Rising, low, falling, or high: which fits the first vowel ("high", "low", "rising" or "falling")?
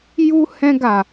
high